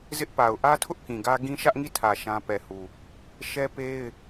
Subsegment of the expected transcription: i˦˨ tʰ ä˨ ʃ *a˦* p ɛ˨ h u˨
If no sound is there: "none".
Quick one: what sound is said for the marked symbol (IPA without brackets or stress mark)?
ã˦